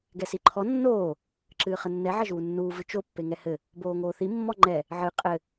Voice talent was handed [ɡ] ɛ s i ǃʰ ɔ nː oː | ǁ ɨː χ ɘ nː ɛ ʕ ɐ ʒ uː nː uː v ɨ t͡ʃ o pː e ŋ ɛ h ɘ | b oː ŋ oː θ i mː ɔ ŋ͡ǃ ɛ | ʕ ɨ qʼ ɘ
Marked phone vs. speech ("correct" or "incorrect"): correct